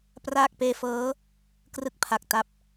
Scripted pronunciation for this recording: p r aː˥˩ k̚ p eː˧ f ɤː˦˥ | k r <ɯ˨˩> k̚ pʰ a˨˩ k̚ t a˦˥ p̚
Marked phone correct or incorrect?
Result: incorrect